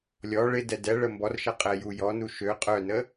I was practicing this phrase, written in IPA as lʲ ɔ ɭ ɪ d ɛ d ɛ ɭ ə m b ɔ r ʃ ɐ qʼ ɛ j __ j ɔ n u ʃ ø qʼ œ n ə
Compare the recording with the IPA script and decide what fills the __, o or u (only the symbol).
u